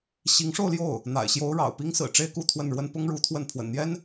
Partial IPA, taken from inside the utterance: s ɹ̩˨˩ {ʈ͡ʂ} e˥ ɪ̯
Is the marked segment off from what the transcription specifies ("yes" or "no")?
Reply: no